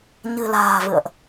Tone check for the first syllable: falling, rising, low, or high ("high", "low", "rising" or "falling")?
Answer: low